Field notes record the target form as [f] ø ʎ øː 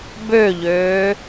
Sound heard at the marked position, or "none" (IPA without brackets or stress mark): b